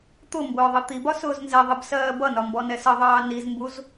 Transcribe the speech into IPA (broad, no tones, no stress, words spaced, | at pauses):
t̪ʊ mbʊːðˤʌt̪ibɒ sʊːznzɛðˤib sɜːbʌnɒ mbɔnɛsʌðˤɑː nizmbuz